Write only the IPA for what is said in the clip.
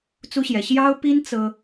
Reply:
t͡su˥ɕjɛ˧˥ ɕjɑ˥ʊ̯pi˥n t͡sɤ˥

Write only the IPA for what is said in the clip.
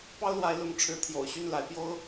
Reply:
pɑ˦ʊ̯lwa˨˦ɪ̯lʊ˨˦ŋ ʈ͡ʂʰɻ̩˨˦t̪ʰjo̰˨˩ʊ̯ɕy˥˨nla˨˦ɪ̯ pjo˦ʊ̯

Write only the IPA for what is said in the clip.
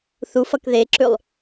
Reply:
θufʌk ðeǁʉlˠ

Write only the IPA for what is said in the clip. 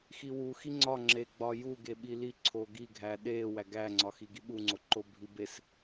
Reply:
xiwu xiŋ͡ǀɒ ŋ͡ǁeɡ͡bɒju ɡeɓili ǀʰoɡi ɡʱæɗe wæɡæŋ͡ǀɒxi ɡiɓuŋ͡ǀoǃo bʱibes

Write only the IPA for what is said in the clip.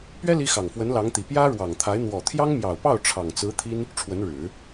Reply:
pɥɛ˥ li˥ xɑ˨˩ŋfwə˧˥n lɑ˧˥ŋt̪i˨˩ pjä˥ɻwɑ˨˩ŋt̪ʰa˧˥ɪ̯ n̪wɔ˨˩t̪ʰjɑ˥ŋmjɑ˨˩ʊ̯pɑ˥˩ʊ̯ ʈ͡ʂʰɑ˨˩ŋ t͡sɹ̩˧˥ t̪ʰi˥n | ʈ͡ʂʰwə˧˥nɻɻ̩˨˩˦

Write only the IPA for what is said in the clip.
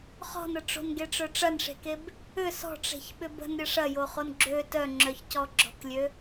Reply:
χɔ̤nə ʈ͡ʂo̤nɡeʈ͡ʂœ ʈ͡ʂɐnʂe̤keb | ʏ sɔ̤ʈ͡ʂe̤çɓʏb ə̤nɾʲə ʂɐjoχon ɡ͡ǁø tœŋ͡ǁœçcɔ ɡ͡ǁɔ̤klʲø

